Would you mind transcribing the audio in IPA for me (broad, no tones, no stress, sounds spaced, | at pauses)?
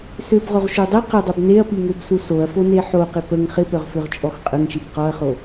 s ø b ʁ o ʁ ʃ u dˤ i q ɪ dˤ œ b n e ɐ̯ p i ŋ ø b s u s o ɐ̯ f o n e ħ o q ɪ p ə ŋ χ ɪ p œ ʁ f ø ʁ t͡ʃʼ ɔ x qʼ ə ŋ ʃ i b q ɔ ɐ̯ χ o